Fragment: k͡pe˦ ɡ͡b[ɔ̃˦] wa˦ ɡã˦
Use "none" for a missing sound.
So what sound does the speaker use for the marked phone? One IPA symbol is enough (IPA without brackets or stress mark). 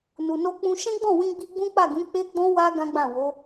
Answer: ɔ̃˦